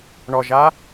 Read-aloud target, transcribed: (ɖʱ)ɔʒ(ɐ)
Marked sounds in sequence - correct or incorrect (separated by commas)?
incorrect, incorrect